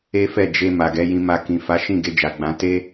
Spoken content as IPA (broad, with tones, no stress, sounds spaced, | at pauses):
e˦ f ɛ˦˨ d͡ʒ e˧ m a˨ ɡ ɛ˨˦ j ĩ˧ m a˧ k ĩ˨ f a˨˦ ʃ ĩ˦˨ ɡ e˧ d͡ʒ a˨ ɡ͡b ã˨˦ t e˦